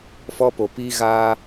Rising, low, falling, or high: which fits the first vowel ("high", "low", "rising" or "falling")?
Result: high